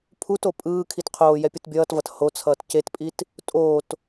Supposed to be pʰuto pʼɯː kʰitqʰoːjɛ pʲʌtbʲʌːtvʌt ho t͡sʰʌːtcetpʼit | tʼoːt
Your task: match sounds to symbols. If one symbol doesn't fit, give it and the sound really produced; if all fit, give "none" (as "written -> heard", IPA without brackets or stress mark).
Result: none